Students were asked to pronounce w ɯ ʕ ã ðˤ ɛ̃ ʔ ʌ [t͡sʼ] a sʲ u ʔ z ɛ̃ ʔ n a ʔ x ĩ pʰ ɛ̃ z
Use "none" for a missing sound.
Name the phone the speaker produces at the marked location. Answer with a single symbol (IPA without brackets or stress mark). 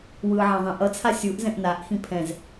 t͡sʰ